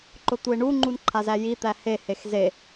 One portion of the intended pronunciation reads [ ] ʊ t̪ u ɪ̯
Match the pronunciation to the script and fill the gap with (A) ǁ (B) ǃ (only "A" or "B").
B